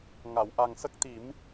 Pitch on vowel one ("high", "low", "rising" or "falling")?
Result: low